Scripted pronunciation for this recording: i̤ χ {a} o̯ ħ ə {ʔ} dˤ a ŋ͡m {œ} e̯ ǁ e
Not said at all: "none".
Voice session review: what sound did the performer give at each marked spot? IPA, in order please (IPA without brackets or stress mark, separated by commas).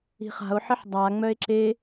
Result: a̤, ħ, œ